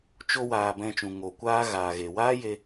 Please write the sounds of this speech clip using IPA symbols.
t͡ʃ o˧ w aː˨ b ɛ̃˧ t͡ʃ ũ˨ ŋ o˨ kʷ aː˦ ɣ aː˨ ɣ e˨ w aː˦ j e˧

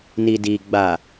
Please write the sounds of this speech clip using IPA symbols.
n i˨ d iː˨ ɡ͡b a˨

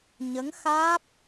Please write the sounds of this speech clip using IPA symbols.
ɲ ə˧˥ ŋ x aː˦˥ p̚

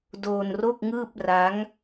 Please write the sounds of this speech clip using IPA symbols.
d oː˧ n r o˥˩ k̚ ŋ ɯː˥˩ p̚ r a˦˥ ŋ

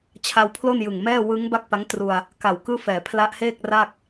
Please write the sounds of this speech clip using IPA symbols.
t͡ɕʰ a˧ w pʰ l o˥˩ n j ɯ˨˩ ŋ m ɛː˥˩ w ɯ˦˥ ŋ b a˥˩ k̚ p a˦˥ ŋ t r u˧ a̯ | k a˨˩ w k ɯː˥˩ f ɛː˩˦ pʰ l a˦˥ ʔ h eː˥˩ k̚ r a˥˩ k̚

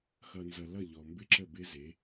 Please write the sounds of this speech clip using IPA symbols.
x ʌ˨ n z ʌ˨ l ʌ˦˨ ʎ ɔ˨ m b ɪ˦ ǁ ə˦˨ b ɪ˦ z e˨˦

